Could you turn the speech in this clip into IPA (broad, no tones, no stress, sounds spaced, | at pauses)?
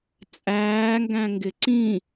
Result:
t͡sʼ æː ŋ ɡ æ̃ ŋ ɡ ɪ ǀ ĩ